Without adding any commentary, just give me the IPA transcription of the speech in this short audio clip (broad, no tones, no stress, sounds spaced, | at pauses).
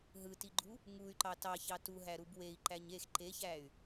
ɦ ɯ t i ɡ͡ǃ u | ŋ u y̯ ǃ ɑ t ɑ ç ɑ t u ɦ æ ɾ u b w e i̯ ǃ æ ɲ e x ǃ e ç æ y̯